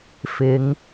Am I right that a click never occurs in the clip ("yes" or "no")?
yes